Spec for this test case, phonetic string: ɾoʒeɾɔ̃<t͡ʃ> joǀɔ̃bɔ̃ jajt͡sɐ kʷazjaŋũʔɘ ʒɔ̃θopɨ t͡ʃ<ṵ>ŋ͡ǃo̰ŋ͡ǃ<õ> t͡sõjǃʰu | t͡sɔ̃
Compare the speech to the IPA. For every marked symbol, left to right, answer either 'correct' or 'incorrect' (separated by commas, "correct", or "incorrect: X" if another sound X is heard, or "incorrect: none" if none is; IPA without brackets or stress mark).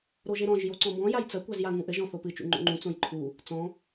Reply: incorrect: ʒ, correct, incorrect: ũ